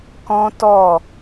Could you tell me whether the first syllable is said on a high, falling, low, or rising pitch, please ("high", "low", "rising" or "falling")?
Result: high